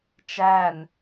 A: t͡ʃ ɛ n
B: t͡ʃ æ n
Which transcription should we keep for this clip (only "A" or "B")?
B